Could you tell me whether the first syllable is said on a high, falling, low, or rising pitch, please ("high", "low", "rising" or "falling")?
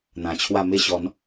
low